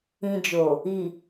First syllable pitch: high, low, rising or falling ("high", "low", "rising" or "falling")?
low